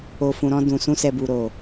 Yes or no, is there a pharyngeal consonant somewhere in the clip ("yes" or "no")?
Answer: no